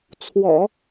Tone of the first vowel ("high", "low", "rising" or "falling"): low